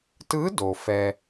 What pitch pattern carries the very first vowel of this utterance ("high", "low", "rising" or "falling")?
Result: rising